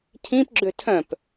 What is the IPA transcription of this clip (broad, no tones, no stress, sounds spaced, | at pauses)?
cʰ ĩ p ɡ͡ǁ ø tʰ œ̃ p